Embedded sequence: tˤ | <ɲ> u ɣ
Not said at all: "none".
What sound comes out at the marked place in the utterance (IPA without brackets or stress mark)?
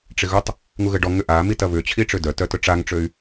ŋ